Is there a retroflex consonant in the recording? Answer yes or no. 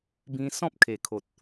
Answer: no